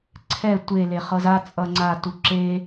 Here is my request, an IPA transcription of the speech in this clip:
ǀʰ ɛ tʷ e l e χ ɤ z a t͡sʼ ʌ ŋ͡ǀ a t u ǁ e

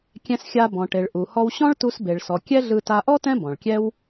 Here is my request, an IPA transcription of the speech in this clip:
kʲ ɛ̃˧ s xʲ a˧ b ɔ̃˩ ʈ e˩ ɭ ʔ u˩ h ɔ˧ w ɕ ɔ̃˥ ɭ t u˧ s b e˩ ɭ s ɔ˩ kʲ ɛ˥ ɮ ɯ˧ t a˧ ʔ ɔ˥ t ɛ̃˥ b ɔ̃˩ ɭ kʲ ɛ˥ w

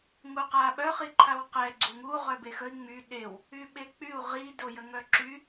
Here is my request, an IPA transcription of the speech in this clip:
ŋ u q a ɓ œ χ i ǃʰ a w q ɛ ɡ͡ǀ u ŋ u ʁ œ b e x ə i̯ ŋ͡m y ɗ e w | y ɓ e k͡p y u̯ ʁ i d o j ə ŋ œ ǁ y

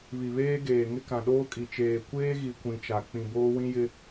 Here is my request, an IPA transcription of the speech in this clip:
β i˨ β eː˦ ɡ eː˨ ŋ ɪ˦ k ã˨ ɗ oː˦ kʼ i˨ t͡ʃ eː˨ kʷ eː˦ ɣ i˨ kʷ ĩ˨ t͡ʃ a˨ k͡p ĩ˨ b oː˦ w ĩ˦ j ɪ˦

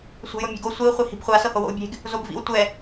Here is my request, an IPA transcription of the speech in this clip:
sʷ e̤ j o mʲ e̤ ɡ o sʷ i u̯ χʷ i h i̤ b χʷ a s ɤ h o w o̰ u̯ bʲ e̤ ɡ | z o b v ḭ w tʷ ɛ

